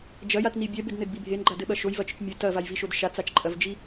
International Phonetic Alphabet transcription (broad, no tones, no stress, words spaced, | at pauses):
d͡ʒɐjatni bʲɛbɘdnɘdbi bʱenɡ͡ǃadɘɓɐ ʃojvɐt͡ʃɨt͡ʃ mʲɘ tɐvajviʃod ʃat͡sat͡ʃ ǃʼɐvd͡ʒi